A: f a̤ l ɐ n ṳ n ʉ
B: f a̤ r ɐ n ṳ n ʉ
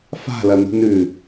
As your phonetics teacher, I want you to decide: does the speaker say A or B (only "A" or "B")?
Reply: A